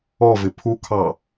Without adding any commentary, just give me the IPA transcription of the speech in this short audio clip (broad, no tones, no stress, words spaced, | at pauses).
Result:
ɔvɪ pʰukʰɑ